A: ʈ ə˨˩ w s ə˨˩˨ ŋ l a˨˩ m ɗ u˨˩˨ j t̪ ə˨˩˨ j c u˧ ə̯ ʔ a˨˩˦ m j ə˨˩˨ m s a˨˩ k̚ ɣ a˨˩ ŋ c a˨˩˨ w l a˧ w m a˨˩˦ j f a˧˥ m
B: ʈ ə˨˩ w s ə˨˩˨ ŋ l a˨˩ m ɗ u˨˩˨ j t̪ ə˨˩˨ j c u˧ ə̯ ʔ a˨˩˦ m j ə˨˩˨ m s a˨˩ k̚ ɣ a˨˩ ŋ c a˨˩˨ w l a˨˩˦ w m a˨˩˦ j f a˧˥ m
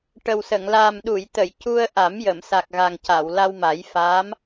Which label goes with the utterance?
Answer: A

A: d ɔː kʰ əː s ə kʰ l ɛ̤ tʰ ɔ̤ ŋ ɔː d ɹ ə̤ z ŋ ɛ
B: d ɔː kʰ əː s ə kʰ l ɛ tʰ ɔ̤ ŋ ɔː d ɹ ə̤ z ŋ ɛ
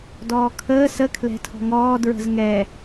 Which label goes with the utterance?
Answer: A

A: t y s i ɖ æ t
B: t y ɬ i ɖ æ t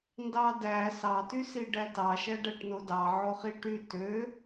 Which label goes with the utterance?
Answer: A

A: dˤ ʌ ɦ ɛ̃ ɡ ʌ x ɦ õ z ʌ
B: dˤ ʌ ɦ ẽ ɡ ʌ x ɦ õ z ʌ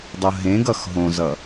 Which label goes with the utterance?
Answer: B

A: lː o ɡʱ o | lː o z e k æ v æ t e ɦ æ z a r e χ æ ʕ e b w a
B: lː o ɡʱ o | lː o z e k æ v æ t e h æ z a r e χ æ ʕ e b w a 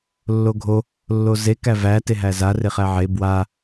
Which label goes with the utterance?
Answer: A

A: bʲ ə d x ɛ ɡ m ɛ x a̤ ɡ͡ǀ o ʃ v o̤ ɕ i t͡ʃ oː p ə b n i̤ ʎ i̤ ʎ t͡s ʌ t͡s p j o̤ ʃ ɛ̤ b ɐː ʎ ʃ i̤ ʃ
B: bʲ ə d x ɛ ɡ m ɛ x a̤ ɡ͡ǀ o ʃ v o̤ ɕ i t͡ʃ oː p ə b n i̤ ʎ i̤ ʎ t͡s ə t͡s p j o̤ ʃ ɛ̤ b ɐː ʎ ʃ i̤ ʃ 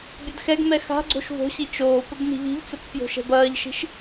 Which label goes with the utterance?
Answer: B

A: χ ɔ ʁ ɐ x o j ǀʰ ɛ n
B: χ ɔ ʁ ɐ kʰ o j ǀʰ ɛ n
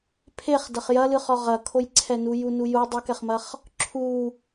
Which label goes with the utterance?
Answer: B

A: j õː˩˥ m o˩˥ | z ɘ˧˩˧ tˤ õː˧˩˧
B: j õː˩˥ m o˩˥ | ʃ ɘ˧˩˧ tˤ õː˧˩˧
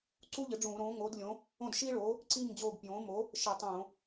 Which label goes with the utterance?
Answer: B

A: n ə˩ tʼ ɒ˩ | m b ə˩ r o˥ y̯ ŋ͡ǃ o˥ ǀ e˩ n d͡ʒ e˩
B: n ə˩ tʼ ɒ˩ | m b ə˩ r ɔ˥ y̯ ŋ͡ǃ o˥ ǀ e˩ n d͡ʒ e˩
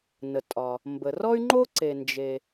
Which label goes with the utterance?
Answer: B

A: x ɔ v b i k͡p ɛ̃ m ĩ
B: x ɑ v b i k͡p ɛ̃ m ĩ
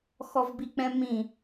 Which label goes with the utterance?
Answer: A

